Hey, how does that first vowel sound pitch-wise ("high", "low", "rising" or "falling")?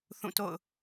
falling